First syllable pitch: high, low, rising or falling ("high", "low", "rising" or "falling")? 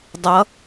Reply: rising